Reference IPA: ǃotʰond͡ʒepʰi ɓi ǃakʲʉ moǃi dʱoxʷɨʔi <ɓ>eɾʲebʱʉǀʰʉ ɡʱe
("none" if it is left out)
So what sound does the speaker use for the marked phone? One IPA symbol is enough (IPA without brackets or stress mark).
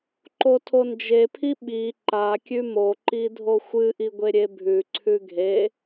ɡʷ